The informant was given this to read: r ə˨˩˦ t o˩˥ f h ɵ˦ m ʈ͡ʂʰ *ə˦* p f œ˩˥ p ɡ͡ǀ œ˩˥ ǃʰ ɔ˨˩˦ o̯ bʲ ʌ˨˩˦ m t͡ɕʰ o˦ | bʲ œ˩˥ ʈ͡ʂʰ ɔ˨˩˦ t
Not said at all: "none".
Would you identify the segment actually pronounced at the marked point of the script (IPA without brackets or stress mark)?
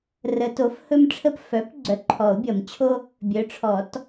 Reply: ə˦